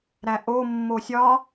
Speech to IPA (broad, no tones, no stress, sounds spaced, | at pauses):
ɾ æ ʔ o mː o sʲ ɒ